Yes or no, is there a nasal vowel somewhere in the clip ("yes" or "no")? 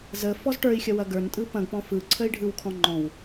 yes